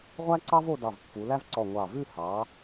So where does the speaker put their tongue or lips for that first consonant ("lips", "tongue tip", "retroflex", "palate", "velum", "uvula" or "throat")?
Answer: uvula